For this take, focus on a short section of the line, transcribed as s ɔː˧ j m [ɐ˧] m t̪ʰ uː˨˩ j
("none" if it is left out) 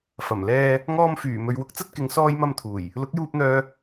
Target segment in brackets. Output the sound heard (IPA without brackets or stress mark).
ɐ˧